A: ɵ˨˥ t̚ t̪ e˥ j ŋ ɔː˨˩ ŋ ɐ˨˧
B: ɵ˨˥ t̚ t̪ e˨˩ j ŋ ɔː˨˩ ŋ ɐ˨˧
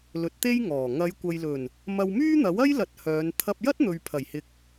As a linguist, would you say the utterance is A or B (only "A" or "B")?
A